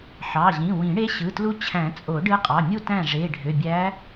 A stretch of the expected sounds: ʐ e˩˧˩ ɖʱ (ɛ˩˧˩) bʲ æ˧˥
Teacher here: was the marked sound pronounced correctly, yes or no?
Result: no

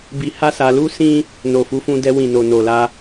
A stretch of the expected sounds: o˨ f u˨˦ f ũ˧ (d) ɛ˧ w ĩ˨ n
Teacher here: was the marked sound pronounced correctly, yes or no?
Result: yes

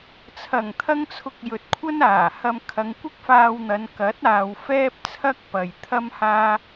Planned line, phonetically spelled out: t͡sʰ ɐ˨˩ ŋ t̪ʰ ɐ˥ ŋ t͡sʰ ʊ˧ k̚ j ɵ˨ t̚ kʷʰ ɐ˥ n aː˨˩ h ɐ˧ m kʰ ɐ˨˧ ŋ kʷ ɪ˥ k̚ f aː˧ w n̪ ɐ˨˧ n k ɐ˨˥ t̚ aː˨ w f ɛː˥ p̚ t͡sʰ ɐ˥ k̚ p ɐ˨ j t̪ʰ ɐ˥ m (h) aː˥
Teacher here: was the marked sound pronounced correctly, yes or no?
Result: yes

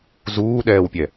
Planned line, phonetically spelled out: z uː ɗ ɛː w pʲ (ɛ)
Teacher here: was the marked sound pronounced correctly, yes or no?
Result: yes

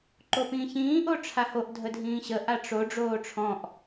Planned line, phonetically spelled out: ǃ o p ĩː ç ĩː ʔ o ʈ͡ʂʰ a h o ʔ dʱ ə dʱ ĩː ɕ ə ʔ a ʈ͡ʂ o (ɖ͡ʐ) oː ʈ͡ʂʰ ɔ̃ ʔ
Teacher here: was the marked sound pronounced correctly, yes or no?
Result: yes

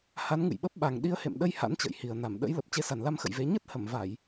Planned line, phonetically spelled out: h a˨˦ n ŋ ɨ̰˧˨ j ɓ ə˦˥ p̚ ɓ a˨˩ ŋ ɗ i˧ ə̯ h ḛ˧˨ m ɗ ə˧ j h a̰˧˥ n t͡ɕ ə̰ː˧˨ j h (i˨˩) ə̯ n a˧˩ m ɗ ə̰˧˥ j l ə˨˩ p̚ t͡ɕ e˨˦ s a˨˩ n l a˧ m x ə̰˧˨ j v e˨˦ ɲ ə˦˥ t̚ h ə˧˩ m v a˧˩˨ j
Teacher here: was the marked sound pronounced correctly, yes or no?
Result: yes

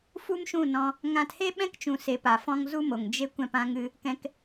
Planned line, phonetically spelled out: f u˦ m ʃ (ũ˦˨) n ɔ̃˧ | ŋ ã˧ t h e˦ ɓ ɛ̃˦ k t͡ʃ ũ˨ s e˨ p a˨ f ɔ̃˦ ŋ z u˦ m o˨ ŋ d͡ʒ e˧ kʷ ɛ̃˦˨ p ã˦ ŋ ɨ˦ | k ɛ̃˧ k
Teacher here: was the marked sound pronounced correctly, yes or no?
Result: yes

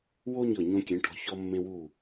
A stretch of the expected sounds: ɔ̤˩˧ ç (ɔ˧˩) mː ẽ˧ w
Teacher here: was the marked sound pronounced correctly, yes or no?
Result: no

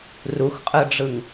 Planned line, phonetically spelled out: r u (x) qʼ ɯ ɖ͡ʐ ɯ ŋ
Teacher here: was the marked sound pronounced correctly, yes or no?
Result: yes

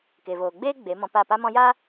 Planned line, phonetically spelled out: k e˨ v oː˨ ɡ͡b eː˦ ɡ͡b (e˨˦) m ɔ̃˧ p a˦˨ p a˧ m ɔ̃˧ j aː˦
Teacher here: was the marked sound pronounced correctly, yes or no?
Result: yes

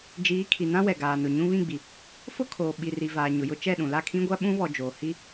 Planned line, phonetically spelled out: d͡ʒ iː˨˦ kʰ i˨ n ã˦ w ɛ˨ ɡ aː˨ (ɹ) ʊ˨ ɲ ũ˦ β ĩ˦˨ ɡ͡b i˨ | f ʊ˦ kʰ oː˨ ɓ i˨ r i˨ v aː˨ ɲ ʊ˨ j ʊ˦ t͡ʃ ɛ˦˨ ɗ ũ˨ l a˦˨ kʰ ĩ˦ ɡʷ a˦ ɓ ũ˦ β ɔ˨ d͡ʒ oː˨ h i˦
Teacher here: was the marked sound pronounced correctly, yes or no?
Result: no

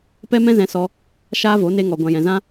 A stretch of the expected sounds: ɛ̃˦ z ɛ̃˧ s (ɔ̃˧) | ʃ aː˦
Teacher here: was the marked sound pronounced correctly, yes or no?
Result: no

